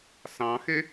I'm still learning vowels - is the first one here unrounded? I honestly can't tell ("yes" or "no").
yes